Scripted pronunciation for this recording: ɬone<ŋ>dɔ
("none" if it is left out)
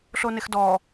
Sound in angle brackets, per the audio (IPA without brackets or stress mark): x